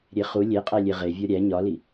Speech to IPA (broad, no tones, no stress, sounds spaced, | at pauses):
ɾʲ e χ u lʲ e qʼ æ lʲ e ʁ e vʲ ɒ ɾʲ æ ɲ ɒ l i